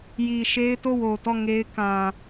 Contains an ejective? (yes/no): no